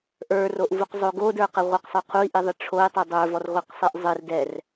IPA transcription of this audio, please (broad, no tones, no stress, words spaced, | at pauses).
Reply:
ʔə˞roʔvuqzˤo ɡodə˞qɘ ʁʷɘqsˤə˞ qʰui̯ʔiðˤe ʈ͡ʂʰoi̯tˤi dˤə˞vɔrʁʷiqsˤiʔ zˤɘr dɛr